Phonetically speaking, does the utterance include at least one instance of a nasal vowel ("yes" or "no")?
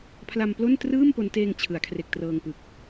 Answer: no